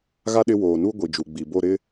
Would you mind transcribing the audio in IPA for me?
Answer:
ɣ a˦ ɗ ɪ˦ w oː˨ n u˦ ɡʷ i˨ d͡ʒ u˨ ɡ͡b i˨ b o˦˨ ɾ ɪ˦

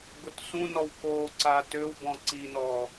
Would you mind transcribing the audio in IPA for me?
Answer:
ɡ ʊ t s ũ n ɔ w k o ǀ a t ø w b ɔ̃ ǀ i n ɔ

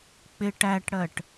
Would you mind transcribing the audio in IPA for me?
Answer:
k͡p ɪ ʈ æ ʈ ɽ ɜ ʈ

